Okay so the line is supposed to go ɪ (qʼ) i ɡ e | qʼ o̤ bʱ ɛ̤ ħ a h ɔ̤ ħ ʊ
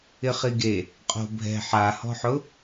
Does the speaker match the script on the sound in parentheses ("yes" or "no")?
no